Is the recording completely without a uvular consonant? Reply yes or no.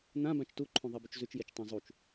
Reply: yes